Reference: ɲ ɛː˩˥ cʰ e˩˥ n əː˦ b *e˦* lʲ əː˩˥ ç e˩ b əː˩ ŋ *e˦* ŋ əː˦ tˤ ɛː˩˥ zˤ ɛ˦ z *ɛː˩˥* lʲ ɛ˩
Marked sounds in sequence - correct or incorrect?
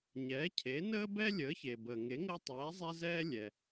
incorrect: ɛ˦, incorrect: e˩˥, incorrect: ɛː˦

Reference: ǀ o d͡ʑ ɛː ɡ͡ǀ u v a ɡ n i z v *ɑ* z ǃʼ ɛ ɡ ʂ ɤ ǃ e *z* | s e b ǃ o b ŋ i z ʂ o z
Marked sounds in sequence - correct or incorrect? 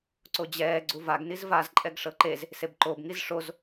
incorrect: a, correct

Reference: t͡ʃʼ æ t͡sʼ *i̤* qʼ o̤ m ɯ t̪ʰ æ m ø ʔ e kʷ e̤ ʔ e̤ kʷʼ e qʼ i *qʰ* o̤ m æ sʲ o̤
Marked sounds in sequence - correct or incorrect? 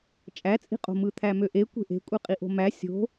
correct, incorrect: ʔ

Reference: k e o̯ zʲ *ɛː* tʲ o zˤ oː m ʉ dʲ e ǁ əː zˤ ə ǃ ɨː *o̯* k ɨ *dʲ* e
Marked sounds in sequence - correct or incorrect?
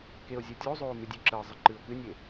incorrect: əː, correct, incorrect: nʲ

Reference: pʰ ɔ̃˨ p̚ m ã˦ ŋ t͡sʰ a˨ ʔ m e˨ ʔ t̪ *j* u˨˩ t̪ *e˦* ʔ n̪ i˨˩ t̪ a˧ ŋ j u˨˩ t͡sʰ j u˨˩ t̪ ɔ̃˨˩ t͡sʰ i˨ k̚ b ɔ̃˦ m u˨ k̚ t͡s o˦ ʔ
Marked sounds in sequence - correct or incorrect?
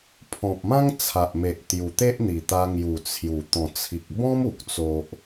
correct, correct

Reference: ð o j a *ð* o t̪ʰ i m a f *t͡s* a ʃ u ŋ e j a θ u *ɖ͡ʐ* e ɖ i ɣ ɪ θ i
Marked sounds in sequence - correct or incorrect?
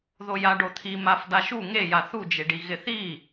incorrect: ɖ, incorrect: d̪, incorrect: d͡ʒ

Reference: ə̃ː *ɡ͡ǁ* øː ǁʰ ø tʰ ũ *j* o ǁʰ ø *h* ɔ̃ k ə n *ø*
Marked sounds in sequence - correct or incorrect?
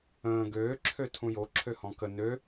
incorrect: ɡ, correct, correct, correct

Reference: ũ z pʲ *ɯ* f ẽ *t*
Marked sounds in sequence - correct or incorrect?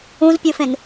incorrect: u, incorrect: n

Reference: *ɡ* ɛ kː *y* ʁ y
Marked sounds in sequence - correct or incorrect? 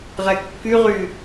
incorrect: ʁ, correct

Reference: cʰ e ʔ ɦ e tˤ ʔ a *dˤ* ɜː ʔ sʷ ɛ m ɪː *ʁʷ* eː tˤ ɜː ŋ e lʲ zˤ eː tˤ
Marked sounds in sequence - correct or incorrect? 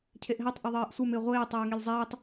incorrect: ðˤ, correct

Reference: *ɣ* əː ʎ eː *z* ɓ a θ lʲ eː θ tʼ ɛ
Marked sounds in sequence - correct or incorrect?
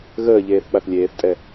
correct, incorrect: θ

